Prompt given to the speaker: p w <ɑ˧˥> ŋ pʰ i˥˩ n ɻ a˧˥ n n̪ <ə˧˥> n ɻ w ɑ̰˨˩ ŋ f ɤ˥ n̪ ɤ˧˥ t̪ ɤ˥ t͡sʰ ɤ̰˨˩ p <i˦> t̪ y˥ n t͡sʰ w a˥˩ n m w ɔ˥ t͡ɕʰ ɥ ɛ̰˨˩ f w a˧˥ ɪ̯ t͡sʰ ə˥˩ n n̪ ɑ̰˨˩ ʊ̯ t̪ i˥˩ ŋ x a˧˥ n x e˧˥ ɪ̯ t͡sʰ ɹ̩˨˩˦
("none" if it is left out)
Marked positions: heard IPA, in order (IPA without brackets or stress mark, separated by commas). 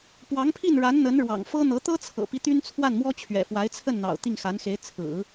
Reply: ɑ˧˥, ə˧˥, i˦